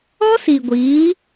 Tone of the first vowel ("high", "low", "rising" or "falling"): high